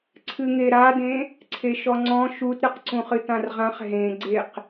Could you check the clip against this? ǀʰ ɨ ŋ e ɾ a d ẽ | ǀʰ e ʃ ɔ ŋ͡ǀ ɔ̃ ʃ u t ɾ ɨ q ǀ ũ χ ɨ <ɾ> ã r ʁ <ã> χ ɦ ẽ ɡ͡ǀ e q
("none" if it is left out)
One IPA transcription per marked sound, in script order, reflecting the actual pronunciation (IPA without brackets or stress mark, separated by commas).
t, ã